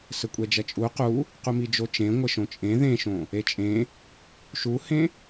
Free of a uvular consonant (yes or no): no